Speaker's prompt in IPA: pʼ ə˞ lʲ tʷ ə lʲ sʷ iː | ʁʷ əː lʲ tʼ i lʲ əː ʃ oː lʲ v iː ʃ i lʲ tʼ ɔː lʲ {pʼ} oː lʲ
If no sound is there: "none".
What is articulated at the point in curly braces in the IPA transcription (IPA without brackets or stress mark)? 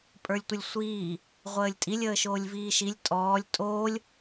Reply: tʼ